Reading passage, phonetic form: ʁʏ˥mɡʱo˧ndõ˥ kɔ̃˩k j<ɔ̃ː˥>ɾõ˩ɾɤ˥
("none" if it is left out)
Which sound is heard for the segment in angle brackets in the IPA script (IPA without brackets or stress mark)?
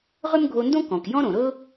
ɔ̃˥